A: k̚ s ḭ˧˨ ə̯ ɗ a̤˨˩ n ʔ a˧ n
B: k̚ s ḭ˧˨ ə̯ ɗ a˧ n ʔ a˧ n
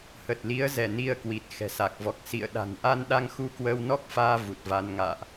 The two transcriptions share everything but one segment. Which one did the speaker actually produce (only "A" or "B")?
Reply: A